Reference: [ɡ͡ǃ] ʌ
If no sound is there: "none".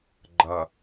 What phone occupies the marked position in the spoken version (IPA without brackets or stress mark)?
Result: ɡ͡ǃ